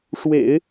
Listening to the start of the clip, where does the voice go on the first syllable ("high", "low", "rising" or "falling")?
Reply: low